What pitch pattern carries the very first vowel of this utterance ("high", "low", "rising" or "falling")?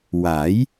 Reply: rising